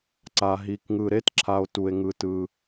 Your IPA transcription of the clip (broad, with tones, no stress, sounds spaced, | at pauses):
ǀ a˩ ɦ i˩ k ŋ ɯ˩ ɾ e˥ t ǁʰ a˩ o̯ t u˩ e̯ ŋ ɯ˩ t ɯ˩